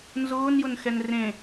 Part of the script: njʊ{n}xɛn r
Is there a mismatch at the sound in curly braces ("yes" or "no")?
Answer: no